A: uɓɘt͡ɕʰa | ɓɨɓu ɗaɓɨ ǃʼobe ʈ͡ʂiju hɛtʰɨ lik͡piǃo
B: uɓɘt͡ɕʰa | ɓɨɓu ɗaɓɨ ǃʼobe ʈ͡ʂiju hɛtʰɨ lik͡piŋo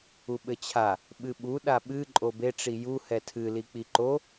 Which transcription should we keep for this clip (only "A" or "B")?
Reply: A